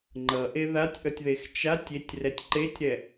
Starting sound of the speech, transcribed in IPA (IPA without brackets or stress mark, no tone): ŋ͡ǃ